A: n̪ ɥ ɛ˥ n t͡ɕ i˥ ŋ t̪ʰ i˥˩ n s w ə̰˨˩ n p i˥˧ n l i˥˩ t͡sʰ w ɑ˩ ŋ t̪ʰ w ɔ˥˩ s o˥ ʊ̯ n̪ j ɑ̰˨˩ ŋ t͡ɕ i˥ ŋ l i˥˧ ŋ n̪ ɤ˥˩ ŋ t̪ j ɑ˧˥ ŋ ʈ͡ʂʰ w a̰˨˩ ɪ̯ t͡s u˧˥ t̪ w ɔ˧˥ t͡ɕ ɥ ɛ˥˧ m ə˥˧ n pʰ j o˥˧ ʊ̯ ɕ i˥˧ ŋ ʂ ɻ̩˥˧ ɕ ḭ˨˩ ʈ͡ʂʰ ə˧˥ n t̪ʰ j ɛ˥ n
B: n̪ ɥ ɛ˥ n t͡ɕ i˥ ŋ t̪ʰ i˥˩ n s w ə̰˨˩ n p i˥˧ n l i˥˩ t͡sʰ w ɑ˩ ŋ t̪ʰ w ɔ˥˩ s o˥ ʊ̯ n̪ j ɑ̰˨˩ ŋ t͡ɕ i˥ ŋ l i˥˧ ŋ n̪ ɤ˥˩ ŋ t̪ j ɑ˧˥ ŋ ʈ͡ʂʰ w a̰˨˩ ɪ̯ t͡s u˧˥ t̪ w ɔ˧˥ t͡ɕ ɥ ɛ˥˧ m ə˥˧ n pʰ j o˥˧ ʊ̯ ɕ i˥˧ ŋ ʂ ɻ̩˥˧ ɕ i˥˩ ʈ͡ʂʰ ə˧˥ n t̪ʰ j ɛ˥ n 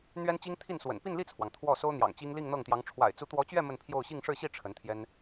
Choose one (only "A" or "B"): B